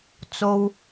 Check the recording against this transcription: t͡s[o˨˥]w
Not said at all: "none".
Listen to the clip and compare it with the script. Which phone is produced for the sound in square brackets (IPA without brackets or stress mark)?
o˥